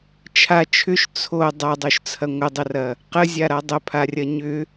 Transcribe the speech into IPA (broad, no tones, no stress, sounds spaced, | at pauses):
t͡ʃʰ a t͡ʃʰ ʏ ʃ t͡sʰ o dˤ a dˤ o ʃ t͡sʰ ɐ ŋʷ ə dˤ ə r ɐ | q ə zʲ a ɾ a dˤ ə pʰ a rʲ ɐ ɲ ʏ